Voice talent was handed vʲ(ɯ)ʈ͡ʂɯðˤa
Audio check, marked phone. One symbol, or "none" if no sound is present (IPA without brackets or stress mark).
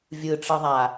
ɯ